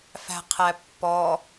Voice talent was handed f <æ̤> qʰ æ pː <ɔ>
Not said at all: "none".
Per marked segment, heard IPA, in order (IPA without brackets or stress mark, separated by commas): æ̤, ɔ